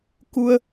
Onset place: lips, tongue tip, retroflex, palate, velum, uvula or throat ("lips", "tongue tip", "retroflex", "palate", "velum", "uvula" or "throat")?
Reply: velum